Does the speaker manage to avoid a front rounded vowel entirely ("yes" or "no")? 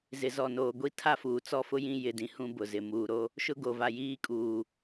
yes